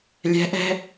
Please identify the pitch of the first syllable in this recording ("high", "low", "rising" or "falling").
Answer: rising